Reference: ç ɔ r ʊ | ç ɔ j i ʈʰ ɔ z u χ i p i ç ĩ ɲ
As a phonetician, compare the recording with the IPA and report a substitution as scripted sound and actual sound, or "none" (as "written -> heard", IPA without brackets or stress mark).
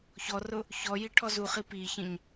none